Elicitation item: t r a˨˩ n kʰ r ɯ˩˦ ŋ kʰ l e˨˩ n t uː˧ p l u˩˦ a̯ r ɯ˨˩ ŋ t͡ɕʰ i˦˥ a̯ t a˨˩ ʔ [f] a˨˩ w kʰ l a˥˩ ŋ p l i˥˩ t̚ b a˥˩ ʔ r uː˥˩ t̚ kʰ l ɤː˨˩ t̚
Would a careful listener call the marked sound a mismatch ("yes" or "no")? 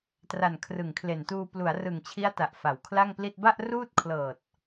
no